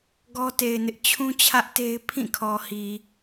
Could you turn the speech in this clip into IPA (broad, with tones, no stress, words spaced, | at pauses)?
ɡɔ˦te˨ɪ̯nɪ˦ʔ t͡ɕʰũ˦t͡ɕʰä˦ʔ te˦ɪ̯ pʰĩ˦˨kʰɔ˨hi˨